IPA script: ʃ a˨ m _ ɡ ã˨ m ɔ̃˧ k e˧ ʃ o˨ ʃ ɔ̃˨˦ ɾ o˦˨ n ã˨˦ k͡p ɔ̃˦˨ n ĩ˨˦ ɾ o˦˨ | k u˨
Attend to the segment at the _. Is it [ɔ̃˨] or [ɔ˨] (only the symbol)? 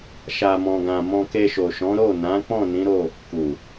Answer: ɔ̃˨